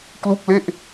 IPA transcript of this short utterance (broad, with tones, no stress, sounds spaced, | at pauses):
k l u˥˩ k̚ l e˥˩ ʔ